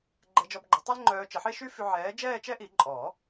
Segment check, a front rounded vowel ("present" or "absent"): present